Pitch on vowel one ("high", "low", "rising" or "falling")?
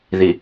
low